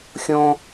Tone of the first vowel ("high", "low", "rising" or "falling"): high